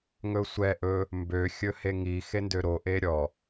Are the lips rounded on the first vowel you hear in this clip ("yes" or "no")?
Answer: yes